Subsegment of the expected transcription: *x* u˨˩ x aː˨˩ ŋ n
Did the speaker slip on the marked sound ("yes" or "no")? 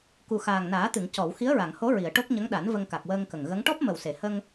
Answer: yes